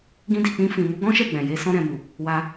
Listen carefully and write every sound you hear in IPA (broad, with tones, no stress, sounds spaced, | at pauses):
ɡ ĩ˧ d i˨ k͡p ĩ˧ f ĩ˨ m u˨˦ ɡ ɔ̃˦ ʃ ɛ˦˨ ɡ͡b ɛ̃˨ j e˧ s ɔ̃˧ ɾ ɛ̃˨ m u˨ | w a˧